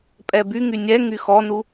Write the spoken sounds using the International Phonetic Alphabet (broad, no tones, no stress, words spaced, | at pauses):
pʼɛbyŋy nʲɛ ŋyxɔnu